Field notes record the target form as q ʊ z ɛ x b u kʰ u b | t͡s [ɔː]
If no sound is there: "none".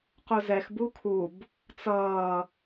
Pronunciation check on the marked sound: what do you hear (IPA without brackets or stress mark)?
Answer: ʌː